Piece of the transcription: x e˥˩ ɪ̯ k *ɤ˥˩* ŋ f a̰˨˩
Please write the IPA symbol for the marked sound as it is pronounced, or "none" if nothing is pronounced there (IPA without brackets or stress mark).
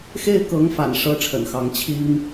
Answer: ɤ˧˥